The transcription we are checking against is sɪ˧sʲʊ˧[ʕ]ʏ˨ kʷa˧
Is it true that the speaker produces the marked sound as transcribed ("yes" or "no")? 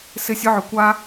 yes